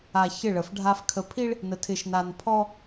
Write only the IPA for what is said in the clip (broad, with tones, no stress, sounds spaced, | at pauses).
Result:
a˨ ç ɪ˦˨ ɭ ə˨ f ɖʱ a˦ f kʰ ə˨ pʰ i˦ ɭ | n ə˨ tʰ ɪ˨ ʃ n a˨ n pʰ ɔ˦